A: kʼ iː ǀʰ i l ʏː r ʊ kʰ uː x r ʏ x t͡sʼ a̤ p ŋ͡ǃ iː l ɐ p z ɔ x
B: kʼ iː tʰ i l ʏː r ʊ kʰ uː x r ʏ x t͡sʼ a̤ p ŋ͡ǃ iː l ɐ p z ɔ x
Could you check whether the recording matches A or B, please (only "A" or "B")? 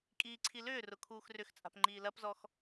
A